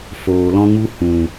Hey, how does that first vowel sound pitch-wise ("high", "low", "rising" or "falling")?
low